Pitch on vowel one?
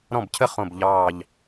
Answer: falling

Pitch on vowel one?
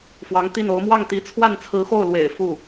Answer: rising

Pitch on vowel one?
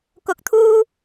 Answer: rising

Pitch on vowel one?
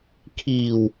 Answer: low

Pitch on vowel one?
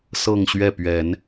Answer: falling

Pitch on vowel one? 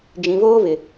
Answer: low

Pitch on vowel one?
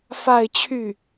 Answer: falling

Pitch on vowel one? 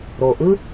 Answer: low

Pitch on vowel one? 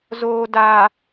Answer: low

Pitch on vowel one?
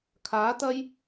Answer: rising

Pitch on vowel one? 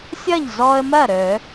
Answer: falling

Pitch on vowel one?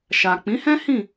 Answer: low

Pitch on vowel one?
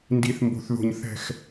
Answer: high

